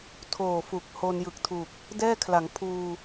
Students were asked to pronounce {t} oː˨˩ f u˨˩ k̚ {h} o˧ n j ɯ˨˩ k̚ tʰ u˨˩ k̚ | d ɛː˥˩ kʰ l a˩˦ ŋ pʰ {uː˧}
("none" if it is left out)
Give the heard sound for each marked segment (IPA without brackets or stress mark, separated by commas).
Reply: tʰ, h, uː˧